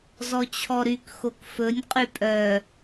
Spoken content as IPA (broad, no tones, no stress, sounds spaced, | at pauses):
z ɔ t͡ɕʰ ɔ ɾ y k x o k f ɵ nʲ qʼ y pʼ œ